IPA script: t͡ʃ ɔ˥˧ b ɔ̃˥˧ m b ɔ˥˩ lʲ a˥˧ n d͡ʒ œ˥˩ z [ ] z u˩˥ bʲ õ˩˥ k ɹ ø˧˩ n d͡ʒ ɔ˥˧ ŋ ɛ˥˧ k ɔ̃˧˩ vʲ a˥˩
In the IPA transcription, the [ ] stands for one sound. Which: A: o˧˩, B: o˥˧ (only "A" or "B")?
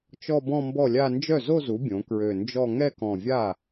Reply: B